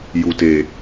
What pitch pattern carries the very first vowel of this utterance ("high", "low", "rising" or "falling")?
low